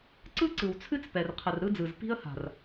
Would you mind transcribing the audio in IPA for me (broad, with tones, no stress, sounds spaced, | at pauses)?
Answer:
ǀ ɯ˦ ǀ ɯ˨ w t͡sʰ ɨ˦ t͡s p ɛ˨ r qʰ ə˨ r ɾ ɯ˦ d͡z ɯ˨ z p i̤˦ ə̯ h a̤˨ r